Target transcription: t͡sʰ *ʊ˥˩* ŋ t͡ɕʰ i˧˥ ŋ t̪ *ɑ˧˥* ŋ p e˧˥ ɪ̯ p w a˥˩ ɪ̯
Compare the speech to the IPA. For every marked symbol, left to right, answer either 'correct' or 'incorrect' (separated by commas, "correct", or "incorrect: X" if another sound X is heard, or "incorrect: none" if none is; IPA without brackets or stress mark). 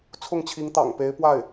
correct, incorrect: ɑ̰˨˩